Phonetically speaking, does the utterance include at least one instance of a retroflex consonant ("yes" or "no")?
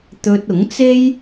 no